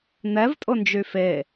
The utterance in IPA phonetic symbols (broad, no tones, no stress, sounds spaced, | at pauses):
n̪ ɛ v tʼ ʊ n d͡ʒ y f e